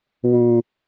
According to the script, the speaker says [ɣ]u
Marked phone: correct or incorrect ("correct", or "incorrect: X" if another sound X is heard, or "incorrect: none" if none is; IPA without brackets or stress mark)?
incorrect: w